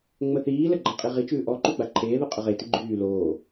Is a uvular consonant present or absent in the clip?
present